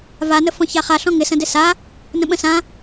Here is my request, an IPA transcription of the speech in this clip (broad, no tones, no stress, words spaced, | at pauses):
vanə fɔ̃çaχaɬɔ̃ ŋɪsə̃ dɪsa | nə̃ɓə̃sã